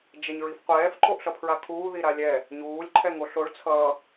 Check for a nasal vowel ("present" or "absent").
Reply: absent